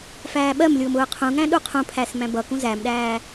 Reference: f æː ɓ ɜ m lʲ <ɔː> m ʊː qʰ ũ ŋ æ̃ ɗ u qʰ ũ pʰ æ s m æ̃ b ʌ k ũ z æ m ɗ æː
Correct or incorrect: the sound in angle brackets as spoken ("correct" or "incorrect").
incorrect